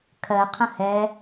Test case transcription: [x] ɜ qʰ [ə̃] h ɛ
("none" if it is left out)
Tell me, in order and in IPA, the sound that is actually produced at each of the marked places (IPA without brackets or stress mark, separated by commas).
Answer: kʰ, ə̃